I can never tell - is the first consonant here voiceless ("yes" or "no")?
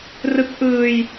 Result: no